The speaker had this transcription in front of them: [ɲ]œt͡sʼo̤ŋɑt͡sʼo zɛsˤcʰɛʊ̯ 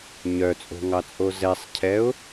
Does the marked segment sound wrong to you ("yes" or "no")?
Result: no